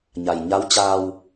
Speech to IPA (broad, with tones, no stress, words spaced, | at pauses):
ɲa˩jɲa˧˥wt͡ɕaː˧w